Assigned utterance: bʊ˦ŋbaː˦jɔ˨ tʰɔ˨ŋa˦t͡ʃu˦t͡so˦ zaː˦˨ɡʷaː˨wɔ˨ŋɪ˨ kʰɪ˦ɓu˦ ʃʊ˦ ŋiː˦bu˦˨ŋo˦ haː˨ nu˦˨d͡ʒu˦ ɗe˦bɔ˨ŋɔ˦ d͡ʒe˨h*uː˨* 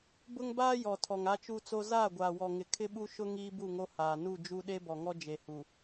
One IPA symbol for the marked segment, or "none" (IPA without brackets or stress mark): u˨